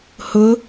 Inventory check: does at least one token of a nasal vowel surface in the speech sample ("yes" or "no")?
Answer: no